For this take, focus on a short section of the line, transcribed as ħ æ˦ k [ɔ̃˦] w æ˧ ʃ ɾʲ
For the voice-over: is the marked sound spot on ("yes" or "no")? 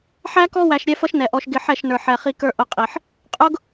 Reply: no